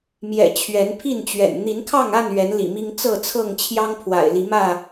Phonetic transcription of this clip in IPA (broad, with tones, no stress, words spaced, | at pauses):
mjɛ̰˨˩ t͡ɕʰɥɛ˨˦npʰi˥˨nt͡ɕɥɛ̰˨˩n n̪i˨˦nkʰɑ˥˨ŋa˥˨n ɥɛ˨˦nlḭ˨˩mi˦ŋ t͡sɤ˥˨t͡sʰɤ˥˨ŋ t͡ɕʰjɑ˦ŋpʰwa̰˨˩ɪ̯ li˨˦mä˥˨